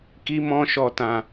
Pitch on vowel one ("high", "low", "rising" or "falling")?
high